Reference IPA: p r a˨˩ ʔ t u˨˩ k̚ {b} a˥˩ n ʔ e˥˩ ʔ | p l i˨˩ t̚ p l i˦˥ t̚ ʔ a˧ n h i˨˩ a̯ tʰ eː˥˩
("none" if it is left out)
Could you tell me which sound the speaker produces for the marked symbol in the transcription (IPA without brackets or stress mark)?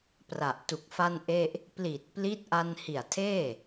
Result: f